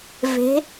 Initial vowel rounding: unrounded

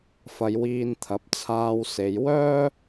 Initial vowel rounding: unrounded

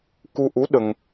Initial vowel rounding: rounded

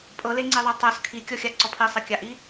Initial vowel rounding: unrounded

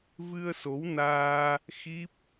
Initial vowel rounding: unrounded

